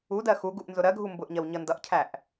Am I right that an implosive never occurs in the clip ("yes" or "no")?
yes